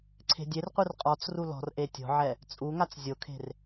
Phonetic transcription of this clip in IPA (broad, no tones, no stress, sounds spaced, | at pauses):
ǀʰ e̤ dʲ e r qʷ ɨ r qʼ ɔ t͡s r u l ɔ̤ r ʔ e tʲ ɔ̤ ʕ ɛ | t͡sʼ u ŋ a t͡s zʲ o kʰ e̤ r